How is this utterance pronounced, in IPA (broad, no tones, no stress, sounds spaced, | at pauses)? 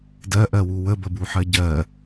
d ɜ ʔ ɜ w u w ə b ə b u ħ ɜ ɟ ɜ